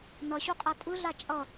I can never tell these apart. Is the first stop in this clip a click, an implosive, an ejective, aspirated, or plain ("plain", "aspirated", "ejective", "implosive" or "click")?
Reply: ejective